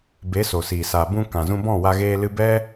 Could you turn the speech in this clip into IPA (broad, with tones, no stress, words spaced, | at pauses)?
be˨˦so˨siː˨ sa˨ bũ˧ kã˨zũ˧bɔ̃˦˨wa˧ ɣeː˧lɨ˧bɛ˦